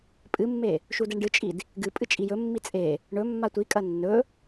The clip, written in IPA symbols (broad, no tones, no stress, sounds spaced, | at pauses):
pʼ ɨ mː e | ʃ u d e ɳ ɖ ɨ t͡ʃʼ i d | ɡ ɨ pʼ ɨ t͡ʃʼ i j ɵ mː i t͡sʼ e | ɳ ɵ mː a tʷ i kʼ ɐ nː ɵ